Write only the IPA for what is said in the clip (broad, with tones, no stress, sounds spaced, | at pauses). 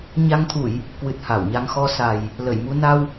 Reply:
ɲ a˧ ŋ t̪ʰ u˧˩˨ j | k w ɨ˨˩ t̚ h a˧˩ w ɲ a˧ ŋ x ɔ˧ s a˨˩ j | l ə˧˩ j m u˧ n a˧ w